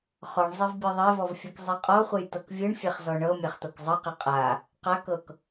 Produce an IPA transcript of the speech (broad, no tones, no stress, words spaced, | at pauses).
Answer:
χɔɳzˤɛv bʲɯðˤɛvɔvfʲɯk zˤeqʼɔχʷej tɤkvʲɯɳfʲɛχ zɔɳɤ mʲaχt̪ɤkzˤɯqɛ qʼa | qakɤk